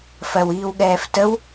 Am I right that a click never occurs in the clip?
yes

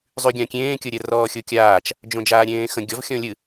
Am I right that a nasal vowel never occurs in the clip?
no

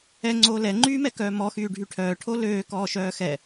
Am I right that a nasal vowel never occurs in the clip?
yes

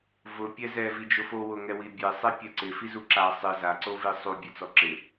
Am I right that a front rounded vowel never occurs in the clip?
yes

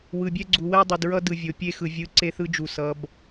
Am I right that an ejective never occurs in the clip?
yes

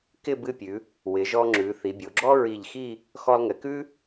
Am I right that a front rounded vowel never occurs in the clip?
yes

